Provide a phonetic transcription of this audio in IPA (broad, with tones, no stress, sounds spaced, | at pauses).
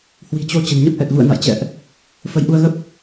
h w i̤˨˩ t͡ɕ o˧ t͡ɕ ə̤˨˩ n ɲ ə˦˥ p̚ ʔ ɛ˨˩ k̚ ɣ ṵ˧˨ ə̯ n a̰˧˨ j t͡ɕ ɛ̰˧˨ ʔ | f ə˨˦ j ʔ u˧ ə̯ ɣ ə˦˥ p̚